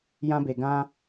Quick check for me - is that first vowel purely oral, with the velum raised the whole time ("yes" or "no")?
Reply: no